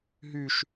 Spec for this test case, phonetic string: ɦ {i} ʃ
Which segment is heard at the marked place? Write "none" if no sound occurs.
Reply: y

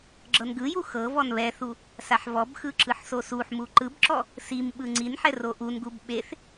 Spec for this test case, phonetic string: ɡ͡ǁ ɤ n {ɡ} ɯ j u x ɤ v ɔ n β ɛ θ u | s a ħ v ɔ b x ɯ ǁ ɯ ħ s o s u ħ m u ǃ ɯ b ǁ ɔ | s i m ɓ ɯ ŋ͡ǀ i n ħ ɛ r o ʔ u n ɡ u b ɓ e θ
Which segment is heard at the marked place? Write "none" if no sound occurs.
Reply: ɡ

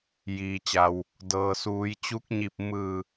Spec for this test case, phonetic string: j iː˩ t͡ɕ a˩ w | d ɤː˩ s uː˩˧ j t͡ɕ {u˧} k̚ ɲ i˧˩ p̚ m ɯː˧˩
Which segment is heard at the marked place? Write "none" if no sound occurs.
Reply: u˧˥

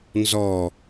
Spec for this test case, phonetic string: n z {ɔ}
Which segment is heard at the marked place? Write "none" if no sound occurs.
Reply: ɔ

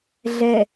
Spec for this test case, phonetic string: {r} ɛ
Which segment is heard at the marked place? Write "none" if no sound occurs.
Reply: ɮ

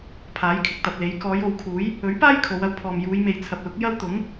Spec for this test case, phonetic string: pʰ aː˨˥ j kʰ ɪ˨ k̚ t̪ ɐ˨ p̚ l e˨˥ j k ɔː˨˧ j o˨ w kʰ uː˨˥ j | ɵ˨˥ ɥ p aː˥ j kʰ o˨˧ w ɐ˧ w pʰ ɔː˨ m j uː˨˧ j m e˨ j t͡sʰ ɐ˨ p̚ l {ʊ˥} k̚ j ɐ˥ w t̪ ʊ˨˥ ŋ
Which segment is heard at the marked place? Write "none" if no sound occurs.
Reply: ʊ˨˥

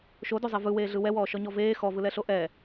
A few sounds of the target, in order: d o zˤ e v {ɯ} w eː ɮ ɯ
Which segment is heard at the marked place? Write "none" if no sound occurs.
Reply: ɯ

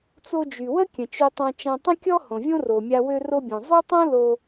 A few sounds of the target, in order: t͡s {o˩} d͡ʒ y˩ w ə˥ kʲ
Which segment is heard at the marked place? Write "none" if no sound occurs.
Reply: o˧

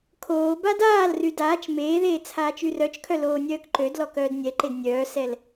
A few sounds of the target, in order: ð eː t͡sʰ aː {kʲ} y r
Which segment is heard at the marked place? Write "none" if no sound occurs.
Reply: t͡ʃ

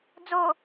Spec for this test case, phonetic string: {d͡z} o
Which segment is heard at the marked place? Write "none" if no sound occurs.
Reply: d͡z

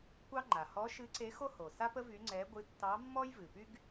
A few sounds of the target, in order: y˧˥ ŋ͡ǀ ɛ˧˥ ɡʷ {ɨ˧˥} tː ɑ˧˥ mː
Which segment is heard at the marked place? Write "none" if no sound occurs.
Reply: ɨ˧˥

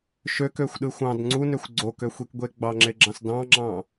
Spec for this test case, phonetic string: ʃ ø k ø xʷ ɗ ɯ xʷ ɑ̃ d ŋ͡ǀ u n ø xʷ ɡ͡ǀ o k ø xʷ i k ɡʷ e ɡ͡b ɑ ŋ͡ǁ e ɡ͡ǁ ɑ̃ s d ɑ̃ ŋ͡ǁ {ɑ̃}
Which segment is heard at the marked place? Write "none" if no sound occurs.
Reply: ɑ̃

